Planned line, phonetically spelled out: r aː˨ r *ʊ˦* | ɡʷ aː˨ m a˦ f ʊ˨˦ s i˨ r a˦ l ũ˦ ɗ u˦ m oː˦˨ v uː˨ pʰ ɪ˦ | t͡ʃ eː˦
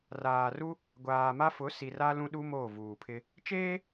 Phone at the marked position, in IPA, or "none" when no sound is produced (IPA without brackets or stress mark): u˦